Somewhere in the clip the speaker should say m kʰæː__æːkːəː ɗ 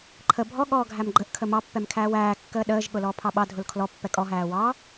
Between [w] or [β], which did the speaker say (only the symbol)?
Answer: w